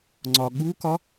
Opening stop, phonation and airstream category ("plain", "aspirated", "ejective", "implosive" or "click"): click